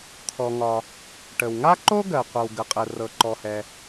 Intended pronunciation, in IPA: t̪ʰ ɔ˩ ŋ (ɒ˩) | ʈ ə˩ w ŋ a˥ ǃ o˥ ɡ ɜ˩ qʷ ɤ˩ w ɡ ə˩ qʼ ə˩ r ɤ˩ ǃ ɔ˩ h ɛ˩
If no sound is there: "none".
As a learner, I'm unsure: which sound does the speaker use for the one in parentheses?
ɒ˩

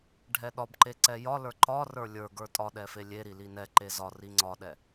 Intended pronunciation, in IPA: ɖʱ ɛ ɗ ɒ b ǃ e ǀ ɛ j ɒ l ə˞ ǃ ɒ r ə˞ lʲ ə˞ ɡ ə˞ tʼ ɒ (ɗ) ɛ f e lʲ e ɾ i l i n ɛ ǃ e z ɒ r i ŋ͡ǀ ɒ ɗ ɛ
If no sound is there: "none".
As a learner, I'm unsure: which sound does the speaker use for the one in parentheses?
ɗ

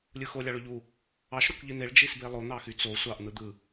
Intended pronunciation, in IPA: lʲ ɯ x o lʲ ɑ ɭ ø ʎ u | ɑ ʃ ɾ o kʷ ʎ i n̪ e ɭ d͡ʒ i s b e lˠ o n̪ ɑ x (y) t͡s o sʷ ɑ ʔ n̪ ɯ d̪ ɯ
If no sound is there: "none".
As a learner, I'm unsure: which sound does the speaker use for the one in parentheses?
y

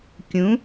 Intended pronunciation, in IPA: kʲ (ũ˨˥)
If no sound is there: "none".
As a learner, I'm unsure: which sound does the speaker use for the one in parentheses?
ũ˨˥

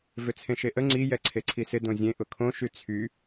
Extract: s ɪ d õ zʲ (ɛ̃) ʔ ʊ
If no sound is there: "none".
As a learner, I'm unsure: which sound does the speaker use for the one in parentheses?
ẽ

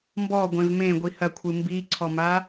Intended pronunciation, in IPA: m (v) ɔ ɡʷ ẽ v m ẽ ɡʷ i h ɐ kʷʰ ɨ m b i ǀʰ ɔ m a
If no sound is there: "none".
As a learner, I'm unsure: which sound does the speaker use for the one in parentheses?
b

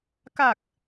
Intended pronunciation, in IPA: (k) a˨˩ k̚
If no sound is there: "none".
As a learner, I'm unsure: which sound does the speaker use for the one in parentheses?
k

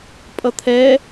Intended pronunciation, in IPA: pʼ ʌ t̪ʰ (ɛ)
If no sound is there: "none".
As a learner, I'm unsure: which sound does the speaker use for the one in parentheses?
ɛ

